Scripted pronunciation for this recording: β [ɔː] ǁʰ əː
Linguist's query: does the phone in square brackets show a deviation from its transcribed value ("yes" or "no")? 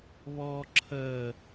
no